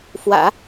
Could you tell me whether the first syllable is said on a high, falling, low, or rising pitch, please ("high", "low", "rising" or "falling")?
low